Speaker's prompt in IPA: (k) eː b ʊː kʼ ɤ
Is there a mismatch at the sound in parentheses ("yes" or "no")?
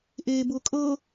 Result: yes